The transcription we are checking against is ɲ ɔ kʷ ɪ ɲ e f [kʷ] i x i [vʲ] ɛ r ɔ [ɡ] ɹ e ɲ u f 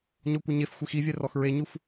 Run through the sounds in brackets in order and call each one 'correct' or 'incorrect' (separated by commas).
incorrect, correct, incorrect